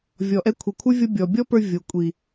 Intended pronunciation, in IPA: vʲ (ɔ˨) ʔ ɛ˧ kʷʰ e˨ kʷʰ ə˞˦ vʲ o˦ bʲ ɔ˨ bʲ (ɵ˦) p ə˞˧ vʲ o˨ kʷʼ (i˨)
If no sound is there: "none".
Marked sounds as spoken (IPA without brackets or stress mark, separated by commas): ɔ˨, ɔ˦, i˨